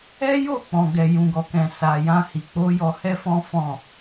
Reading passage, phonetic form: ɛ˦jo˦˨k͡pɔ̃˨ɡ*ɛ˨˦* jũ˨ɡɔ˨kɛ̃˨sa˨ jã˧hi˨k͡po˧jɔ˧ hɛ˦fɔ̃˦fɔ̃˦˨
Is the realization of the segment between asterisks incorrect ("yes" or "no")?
yes